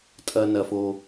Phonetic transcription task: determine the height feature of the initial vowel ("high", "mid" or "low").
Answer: low